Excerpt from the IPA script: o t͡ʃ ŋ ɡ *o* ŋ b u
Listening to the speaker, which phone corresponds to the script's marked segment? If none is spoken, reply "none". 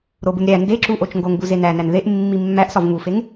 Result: o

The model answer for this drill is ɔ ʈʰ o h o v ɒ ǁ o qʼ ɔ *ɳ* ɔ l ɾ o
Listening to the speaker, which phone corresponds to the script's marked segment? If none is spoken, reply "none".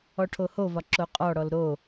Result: ɽ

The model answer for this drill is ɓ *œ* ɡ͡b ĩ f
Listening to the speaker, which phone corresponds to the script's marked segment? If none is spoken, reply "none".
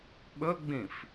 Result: ɵ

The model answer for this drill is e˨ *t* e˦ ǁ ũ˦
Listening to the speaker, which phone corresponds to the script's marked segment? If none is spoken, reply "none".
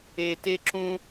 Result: t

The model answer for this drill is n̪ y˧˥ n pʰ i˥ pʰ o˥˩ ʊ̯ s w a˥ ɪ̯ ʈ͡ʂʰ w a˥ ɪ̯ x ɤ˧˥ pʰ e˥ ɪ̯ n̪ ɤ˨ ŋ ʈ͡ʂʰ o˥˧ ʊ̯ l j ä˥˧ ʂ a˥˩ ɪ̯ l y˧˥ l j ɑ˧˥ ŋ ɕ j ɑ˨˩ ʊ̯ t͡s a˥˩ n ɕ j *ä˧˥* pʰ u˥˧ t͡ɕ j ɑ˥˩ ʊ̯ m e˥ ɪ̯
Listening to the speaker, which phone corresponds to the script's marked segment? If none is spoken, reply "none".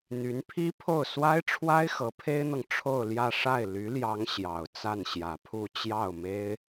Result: ä˨˩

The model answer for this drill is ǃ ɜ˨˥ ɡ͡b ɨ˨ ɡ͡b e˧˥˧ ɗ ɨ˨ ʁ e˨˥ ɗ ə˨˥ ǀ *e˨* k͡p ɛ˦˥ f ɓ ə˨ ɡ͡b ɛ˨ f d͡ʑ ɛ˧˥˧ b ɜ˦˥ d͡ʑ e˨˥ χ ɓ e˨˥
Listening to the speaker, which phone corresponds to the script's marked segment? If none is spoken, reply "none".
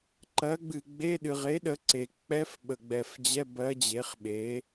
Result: e˨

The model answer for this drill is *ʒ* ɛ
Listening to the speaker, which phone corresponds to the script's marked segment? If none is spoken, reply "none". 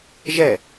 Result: ʒ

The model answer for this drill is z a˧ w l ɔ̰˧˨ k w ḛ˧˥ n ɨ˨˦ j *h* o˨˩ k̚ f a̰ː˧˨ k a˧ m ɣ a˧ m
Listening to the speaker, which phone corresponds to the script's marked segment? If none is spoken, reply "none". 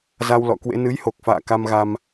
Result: h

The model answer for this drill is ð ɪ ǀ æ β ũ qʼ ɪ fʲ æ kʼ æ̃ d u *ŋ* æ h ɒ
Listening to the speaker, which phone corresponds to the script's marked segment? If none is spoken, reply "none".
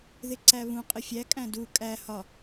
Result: kʼ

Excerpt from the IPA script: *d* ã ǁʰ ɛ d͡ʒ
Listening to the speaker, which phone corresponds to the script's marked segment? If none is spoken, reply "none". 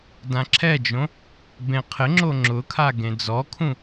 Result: d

